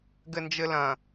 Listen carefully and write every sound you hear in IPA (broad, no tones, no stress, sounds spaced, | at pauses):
ɡ ɘ n d͡ʒ ɘ l ɐ̃